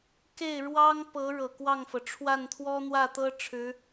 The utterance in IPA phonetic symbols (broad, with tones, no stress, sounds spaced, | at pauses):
k e˥˩ ɪ̯ ɻ w ɑ˥ ŋ p ɤ˧˥ ɻ ɤ˨˩ k w ɑ˥˩ ŋ f ɤ˩ ʈ͡ʂʰ w a˥˩ n t̪ʰ w ɔ˥ n̪ w ä˥˩ t̪ ɤ˥ ʈ͡ʂʰ ɻ̩˧˥